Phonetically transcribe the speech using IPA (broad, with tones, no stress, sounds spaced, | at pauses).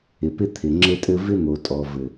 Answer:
ɪ˨ p ɪ˦ t̪ʰ ɪ˨ ŋ͡ǁ ɘ˦ tʼ ɘ˦ v ɪ˦ n̪ o˨ tʼ ɔ˨ v ɘ˨